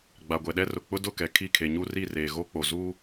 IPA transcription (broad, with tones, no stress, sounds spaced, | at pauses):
ɡ͡b a˨ ɡʷ ɛ˨ ɗ ɛ˦ r ʊ˨ k͡p ʊ˦ d ʊ˦˨ k ɛ˨ kʰ i˦˨ kʰ e˨ ɲ u˦ r i˦˨ r eː˨ ɣ o˦ k͡p o˨ z uː˦